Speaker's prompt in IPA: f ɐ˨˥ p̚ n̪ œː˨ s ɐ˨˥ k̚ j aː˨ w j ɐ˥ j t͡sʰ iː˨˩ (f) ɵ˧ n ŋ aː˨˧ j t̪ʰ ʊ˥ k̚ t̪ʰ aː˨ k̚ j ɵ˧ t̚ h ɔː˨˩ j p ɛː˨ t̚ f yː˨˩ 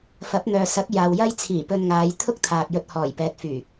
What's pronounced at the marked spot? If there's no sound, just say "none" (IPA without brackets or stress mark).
p